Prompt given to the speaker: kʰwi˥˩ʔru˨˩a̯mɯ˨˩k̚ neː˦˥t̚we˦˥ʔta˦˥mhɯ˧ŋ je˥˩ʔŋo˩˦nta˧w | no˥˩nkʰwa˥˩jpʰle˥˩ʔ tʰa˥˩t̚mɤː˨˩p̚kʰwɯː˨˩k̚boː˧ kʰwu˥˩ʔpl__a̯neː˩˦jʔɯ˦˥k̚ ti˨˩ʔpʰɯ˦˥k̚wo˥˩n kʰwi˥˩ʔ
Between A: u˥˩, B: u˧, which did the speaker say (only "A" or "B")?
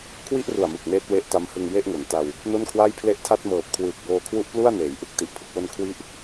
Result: A